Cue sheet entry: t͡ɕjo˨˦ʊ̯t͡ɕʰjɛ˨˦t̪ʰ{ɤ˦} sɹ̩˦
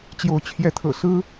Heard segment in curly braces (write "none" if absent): ɤ̰˨˩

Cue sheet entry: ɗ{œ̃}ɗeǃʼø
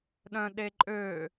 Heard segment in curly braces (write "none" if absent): œ̃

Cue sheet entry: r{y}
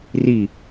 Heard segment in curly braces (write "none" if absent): i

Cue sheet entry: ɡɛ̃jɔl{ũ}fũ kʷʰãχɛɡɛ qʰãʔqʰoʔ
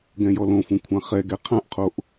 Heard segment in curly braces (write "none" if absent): õ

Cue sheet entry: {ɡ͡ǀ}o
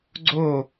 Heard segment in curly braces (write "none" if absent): ɡ͡ǀ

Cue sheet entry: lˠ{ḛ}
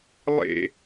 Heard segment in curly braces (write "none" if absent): ḛ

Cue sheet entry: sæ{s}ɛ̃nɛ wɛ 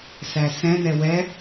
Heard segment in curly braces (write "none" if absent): s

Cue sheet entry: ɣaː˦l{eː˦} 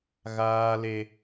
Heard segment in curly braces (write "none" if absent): e˦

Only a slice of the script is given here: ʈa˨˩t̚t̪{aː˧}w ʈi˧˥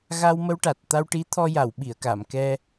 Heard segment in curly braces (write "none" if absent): a˧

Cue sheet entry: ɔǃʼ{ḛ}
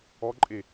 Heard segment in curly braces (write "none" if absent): e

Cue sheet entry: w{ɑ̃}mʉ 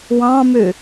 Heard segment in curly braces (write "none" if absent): ɑ̃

